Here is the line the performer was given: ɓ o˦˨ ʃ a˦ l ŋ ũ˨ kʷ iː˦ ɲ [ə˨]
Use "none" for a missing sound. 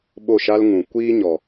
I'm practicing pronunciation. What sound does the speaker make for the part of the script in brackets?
ɔ˨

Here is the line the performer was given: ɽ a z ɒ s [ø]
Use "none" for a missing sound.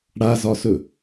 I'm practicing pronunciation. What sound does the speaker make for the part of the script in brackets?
ɵ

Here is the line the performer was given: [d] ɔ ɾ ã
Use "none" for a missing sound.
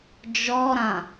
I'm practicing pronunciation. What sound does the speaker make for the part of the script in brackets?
d͡ʒ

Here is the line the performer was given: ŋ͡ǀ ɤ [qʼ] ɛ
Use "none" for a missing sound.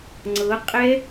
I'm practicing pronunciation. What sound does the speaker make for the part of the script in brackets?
qʼ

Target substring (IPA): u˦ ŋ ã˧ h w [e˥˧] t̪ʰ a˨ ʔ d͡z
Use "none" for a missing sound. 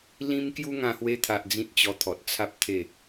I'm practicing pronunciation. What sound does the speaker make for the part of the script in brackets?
e˧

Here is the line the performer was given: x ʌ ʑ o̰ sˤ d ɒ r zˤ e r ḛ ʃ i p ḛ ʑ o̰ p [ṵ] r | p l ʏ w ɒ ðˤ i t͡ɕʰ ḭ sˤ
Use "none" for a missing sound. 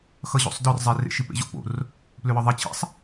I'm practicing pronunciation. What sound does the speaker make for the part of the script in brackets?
o̰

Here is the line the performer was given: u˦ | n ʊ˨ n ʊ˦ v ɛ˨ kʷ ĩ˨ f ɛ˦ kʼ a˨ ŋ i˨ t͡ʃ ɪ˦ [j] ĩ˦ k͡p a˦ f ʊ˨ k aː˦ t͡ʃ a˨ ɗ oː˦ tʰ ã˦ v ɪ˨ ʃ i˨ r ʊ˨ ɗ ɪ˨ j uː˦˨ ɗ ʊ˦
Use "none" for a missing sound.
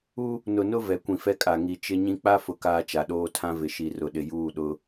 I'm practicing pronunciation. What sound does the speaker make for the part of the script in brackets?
ɲ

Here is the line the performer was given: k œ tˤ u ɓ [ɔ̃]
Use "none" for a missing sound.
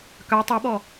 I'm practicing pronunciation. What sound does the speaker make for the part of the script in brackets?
ɔ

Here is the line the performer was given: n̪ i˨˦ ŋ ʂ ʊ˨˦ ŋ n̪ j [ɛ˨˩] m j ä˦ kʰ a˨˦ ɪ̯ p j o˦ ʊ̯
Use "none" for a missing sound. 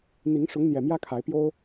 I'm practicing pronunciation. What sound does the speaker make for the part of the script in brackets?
ɛ˨˩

